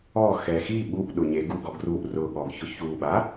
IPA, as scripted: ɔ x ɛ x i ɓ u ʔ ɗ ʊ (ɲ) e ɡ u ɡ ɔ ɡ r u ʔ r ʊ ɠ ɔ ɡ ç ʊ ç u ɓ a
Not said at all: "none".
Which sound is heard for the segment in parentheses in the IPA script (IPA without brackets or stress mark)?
ɲ